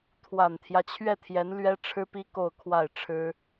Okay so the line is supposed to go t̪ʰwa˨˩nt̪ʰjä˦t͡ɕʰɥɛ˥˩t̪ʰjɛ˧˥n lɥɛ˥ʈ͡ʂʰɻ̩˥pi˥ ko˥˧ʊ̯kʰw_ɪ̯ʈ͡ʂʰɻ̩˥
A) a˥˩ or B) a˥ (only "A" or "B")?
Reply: A